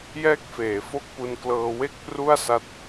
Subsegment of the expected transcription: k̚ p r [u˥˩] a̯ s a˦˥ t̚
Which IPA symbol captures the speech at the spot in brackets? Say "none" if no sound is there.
u˥˩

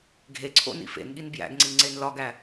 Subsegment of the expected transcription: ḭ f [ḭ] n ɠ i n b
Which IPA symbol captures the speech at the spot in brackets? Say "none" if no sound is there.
ḛ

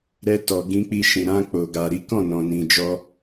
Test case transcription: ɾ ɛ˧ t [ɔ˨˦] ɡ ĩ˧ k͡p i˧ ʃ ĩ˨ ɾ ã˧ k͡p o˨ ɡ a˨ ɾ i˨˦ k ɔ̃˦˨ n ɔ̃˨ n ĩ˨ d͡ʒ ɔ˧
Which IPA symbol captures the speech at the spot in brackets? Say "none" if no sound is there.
ɔ˨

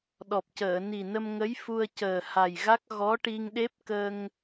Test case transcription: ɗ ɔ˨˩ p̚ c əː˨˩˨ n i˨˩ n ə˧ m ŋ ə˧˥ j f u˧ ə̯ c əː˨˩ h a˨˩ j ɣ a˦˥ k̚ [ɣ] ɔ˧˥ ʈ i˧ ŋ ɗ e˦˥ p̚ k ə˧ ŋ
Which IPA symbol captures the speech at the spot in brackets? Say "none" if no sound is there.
ɣ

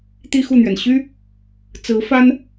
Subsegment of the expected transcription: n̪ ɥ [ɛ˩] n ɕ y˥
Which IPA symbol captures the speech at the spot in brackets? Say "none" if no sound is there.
ɛ˩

